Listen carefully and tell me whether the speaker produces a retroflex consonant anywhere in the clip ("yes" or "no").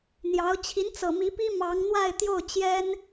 no